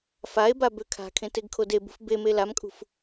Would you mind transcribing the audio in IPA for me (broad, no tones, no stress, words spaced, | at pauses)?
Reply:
fae̯ba bøkʰa̤kʰẽ teɡkʰodebṳf beme lamkʼṳf